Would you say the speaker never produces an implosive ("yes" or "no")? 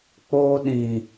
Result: no